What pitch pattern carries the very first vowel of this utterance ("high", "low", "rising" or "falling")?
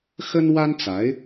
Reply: high